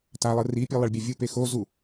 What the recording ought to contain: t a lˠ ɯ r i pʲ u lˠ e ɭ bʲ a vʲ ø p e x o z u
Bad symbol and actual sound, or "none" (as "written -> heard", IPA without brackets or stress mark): ø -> u